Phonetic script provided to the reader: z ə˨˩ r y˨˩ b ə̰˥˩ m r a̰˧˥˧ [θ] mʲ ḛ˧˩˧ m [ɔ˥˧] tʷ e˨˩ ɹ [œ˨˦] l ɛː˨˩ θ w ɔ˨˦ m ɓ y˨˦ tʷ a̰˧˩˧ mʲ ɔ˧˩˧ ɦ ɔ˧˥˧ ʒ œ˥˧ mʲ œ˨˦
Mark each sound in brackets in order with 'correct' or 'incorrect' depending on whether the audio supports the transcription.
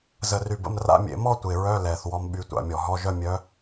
incorrect: none, correct, incorrect: œ˧˥˧

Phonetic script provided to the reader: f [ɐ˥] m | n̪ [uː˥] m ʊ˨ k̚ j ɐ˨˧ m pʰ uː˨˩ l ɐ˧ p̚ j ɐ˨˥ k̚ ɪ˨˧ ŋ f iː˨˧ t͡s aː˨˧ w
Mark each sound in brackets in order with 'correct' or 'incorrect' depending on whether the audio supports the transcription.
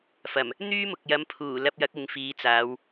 incorrect: ɐ˨˩, incorrect: yː˥

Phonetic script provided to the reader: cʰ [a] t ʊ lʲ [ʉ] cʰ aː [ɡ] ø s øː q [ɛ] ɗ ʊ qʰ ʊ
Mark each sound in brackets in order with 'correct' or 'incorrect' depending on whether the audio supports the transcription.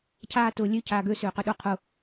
incorrect: aː, incorrect: ø, correct, incorrect: ø

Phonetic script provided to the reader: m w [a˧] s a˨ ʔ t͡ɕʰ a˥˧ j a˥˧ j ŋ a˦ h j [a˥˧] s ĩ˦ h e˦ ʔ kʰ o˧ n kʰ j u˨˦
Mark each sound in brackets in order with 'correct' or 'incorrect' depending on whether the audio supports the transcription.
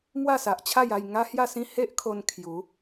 incorrect: a˥˧, correct

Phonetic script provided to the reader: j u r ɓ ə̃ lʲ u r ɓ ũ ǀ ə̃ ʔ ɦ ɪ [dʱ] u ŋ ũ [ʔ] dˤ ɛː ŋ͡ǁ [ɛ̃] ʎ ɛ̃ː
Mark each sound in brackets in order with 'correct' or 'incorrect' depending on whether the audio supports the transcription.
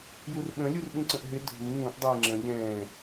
correct, correct, incorrect: ə̃

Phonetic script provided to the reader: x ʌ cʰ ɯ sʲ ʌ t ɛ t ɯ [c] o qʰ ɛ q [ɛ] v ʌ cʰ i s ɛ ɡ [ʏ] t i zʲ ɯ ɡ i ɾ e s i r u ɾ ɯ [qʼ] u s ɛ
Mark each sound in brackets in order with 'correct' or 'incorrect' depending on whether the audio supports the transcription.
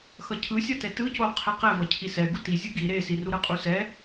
correct, correct, incorrect: u, correct

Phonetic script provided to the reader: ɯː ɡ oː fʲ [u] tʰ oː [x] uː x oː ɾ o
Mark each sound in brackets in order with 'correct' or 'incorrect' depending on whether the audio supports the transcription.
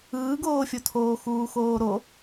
incorrect: o, correct

